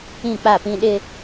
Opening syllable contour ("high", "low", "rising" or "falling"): falling